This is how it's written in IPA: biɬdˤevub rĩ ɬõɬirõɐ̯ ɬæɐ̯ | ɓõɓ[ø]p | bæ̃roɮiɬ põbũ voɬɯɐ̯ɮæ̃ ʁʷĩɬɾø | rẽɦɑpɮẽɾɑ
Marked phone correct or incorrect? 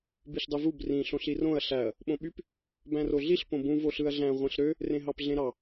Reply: incorrect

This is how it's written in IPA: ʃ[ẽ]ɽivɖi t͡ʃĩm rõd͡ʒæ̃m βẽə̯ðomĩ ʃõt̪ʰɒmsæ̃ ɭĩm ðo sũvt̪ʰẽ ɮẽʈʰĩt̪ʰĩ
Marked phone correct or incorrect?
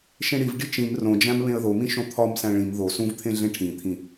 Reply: correct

